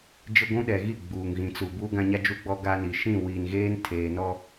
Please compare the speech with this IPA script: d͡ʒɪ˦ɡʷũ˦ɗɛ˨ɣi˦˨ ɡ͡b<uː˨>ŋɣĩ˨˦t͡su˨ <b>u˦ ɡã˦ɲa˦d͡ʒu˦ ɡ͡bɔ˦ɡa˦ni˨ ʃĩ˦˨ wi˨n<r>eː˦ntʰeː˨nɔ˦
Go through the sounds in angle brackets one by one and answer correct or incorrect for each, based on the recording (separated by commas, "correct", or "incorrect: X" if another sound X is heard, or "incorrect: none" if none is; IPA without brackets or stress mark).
correct, correct, incorrect: ɣ